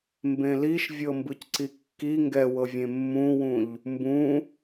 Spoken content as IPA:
m b ẽ l i ʃ vʲ ɤ m b ɯ c ǀ i kː i ŋ ɡ ɛ w ɤ vʲ ẽ mː ũ w ũ ʎ | m b ũ

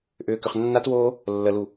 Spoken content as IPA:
ʔ ʏː k ʏ χ nː a t w oː | lː ə l u

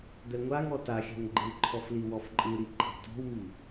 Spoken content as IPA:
d̪ ɛ ŋʷ a ŋ ɔ t a xʲ a̤ ŋ ɡ͡ǃ ɯ ǃʰ ɔ f l i w ɔ f ǃʼ ɯ ɾ i ǃʰ e̤ t ɔ̤ w m i

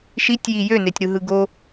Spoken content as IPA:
ʃ i tʲ j i j ø n e tʲ ɾ ɯ ɦ ɯ ɡ o

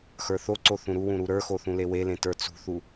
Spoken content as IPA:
x ə˞ θ o ǀ o θ ũ ɾ u w ũ ɾ u ɾ ə˞ x o θ ũ l e w e l ẽ t ə˞ t͡s ṳ θ u

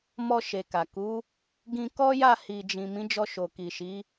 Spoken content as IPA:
m ɔ˧ ʃ e˨ k a˨ k u˨˦ | ɡ ĩ˧ k ɔ˦ j a˦˨ h i˨ d͡ʒ ĩ˨ m ĩ˨˦ d͡ʒ ɔ˧ ʃ o˨ k i˨ ʃ i˨˦

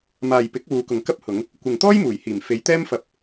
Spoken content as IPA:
m aː˨ j p ɪ˨˥ k̚ w uː˨˧ k ʊ˨ ŋ k ɐ˥ p̚ h ʊ˨˧ ŋ | kʷ ɪ˨ ŋ t̪ ɔː˥ j m uː˨˩ j h iː˨˩ m f e˨˧ j t̪ ɛː˥ m f ɐ˧ p̚

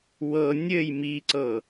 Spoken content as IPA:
w ɤ nʲ ɘ j m i ǀ ɤ

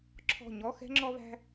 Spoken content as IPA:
ǁʰ ɔ̤˦˨ ɲ ɔ˧˥˧ x ɛ̤˥ ŋ͡ǁ ɔ˥ β æ̤˥

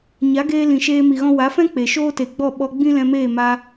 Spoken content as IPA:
ɲ a˨˦ ɡ eː˧ l ĩ˨ ʃ eː˧ m i˨ ɣ ɔ̃˧ w a˨˦ f ɛ̃˦ k͡p e˨ ʃ oː˦ t e˨ ɡ͡b ɔ˦˨ ɓ ɔ˧ ɡ͡b ĩ˦ l ɛ̃˧ m eː˦˨ m a˧

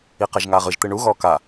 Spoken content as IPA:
i q ɛ ʒ ŋ aː ʁ ɯ ʒ t̪ ɯ ɳ u ɣ ɔː k a

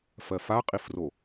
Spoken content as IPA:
f ɜ f a qʼ i f r o

